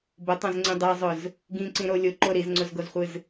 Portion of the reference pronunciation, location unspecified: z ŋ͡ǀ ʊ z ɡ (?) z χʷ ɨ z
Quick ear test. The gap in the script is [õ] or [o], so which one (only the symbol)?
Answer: o